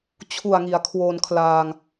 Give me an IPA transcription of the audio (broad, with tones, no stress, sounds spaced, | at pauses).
t͡ɕʰ u˨˩ a̯ ŋ i˩˦ a̯ kʰ w o˧ n kʰ l aː˧ ŋ